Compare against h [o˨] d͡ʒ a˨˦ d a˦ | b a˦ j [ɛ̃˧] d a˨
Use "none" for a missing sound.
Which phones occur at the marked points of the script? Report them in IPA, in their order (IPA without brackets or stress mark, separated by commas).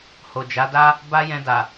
o˨, ɛ̃˧